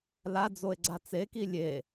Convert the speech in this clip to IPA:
l a d͡z o e̯ ɡ͡ǀ a t͡s e k i lʲ e

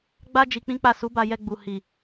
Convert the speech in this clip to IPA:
ɡ͡b a˦ d͡ʒ i˧ k͡p ĩ˦ k͡p a˦˨ s u˨˦ b a˧ j ɛ˧ ɡ͡b u˨ h i˨

